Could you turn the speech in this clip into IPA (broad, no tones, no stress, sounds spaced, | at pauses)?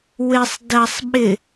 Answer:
w ɪ sˤ d ɐ sˤ ɓ ɪ